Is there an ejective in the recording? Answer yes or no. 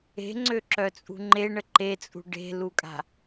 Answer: yes